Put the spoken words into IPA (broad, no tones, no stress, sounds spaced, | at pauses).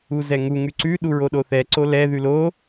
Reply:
u z ɛ ŋ u ŋ ʉ ǀ ʉ ɗ u ɹ o ɗ o θ ɛ ǀ o l ɛ ð ʉ l o